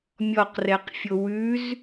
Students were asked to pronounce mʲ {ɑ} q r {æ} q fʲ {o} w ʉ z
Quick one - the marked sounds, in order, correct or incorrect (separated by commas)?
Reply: incorrect, incorrect, correct